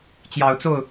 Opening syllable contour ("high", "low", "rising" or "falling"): rising